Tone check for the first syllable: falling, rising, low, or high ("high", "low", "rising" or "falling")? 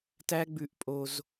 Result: high